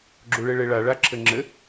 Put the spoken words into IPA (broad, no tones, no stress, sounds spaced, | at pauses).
ɡ͡ǁ u ɭ e ɭ e ɭ a ɭ a ǁʰ ɘ ŋ͡ǁ ɘ